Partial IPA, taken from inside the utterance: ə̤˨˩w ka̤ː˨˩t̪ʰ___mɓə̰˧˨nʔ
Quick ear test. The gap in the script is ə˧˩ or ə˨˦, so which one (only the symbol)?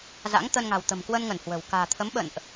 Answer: ə˨˦